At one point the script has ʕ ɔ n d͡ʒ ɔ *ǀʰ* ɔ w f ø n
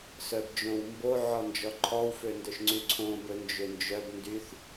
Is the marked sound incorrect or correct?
incorrect